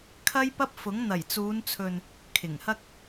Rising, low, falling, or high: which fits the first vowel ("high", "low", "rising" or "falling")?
high